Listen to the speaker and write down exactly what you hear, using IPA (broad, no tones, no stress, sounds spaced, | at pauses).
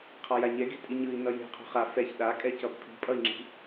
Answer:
qʰ a j a ɲ ɛ ɡ e̤ tʼ i ɲ ɯ i̯ n ʌ j e̤ qʰ o̤ χ a f ɛ ç ɗ a kʼ ɛ c ʌ b pʰ i̤ pʼ ʌ i̯ ŋ͡ǁ i̤